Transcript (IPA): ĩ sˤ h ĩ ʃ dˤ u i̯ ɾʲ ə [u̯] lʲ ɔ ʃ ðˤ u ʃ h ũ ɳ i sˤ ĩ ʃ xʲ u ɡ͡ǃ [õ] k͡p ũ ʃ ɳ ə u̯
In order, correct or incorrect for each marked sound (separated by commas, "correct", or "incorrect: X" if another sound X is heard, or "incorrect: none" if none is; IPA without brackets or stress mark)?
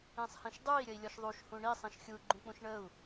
incorrect: i̯, incorrect: ũ